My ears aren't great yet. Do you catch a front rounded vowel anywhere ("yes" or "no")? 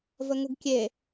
no